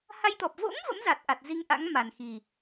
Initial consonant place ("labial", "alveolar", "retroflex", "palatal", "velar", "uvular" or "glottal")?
glottal